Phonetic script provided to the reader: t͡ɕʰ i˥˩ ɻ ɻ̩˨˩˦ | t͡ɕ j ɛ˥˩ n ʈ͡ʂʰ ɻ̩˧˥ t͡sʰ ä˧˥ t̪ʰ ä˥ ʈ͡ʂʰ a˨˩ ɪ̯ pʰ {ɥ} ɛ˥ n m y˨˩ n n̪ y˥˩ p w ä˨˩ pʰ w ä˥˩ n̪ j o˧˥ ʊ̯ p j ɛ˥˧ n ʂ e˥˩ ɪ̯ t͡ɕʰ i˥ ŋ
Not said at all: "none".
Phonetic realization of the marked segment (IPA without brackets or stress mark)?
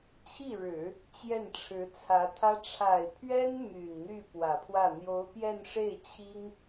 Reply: ɥ